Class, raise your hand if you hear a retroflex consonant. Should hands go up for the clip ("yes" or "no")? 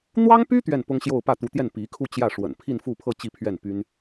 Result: yes